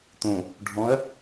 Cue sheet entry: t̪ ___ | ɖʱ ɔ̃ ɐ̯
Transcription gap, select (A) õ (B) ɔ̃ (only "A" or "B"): A